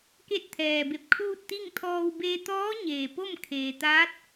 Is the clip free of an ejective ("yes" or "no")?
yes